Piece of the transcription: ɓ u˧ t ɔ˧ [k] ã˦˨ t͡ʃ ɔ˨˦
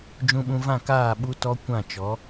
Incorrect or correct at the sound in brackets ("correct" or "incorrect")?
incorrect